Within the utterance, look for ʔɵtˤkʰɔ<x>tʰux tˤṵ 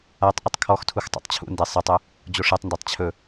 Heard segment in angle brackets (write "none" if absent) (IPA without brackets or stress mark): x